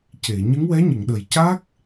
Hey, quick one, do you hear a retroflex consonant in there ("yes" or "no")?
no